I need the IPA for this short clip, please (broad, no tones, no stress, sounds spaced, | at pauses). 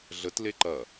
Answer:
ɮ ə t l e ǃ ɐ